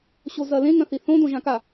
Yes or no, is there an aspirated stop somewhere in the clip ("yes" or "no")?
no